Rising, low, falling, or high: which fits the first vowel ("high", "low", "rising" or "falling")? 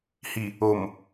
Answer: low